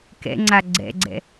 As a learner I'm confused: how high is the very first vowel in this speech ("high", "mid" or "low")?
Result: mid